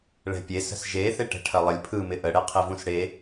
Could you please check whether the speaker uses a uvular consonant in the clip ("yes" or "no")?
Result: yes